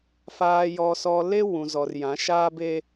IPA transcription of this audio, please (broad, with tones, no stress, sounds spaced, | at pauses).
f aː˨ j ɔ˨ s ɔ˨ l e˦ w ũ˨ z ɔ˨ r j ã˨˦ ʃ aː˦ b e˦